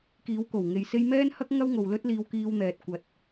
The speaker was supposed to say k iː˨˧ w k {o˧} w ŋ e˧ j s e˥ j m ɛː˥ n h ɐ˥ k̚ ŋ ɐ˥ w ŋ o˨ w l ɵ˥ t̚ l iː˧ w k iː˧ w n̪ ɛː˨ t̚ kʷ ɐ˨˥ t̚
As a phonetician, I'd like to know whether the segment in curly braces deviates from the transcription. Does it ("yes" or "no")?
yes